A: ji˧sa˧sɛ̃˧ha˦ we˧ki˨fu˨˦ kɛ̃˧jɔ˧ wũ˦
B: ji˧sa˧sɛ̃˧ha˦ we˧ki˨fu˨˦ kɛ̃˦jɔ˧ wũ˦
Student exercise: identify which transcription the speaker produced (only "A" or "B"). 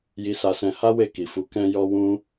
A